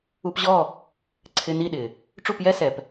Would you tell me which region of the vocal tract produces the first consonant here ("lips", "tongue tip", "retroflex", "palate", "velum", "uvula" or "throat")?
lips